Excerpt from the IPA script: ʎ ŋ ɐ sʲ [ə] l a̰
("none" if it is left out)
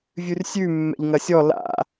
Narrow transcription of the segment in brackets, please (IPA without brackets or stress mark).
ɔ